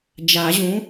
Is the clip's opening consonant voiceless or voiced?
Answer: voiced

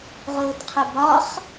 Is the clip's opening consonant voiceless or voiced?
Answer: voiced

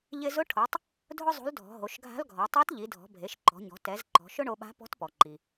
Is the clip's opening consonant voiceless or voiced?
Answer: voiced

